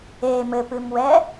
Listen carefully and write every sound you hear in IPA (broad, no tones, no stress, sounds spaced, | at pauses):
e m ɘ p ɨ m w ɛ